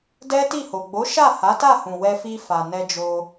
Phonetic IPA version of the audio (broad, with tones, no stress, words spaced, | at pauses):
dɛ˦ti˦˨ho˨ ɡ͡bo˨˦ ʃa˦˨ha˨˦ta˦˨hũ˨ wɛ˧fi˧ fa˨nɛ˧d͡ʒo˧